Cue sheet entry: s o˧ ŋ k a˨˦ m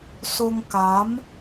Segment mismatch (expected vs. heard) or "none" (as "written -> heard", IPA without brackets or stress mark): none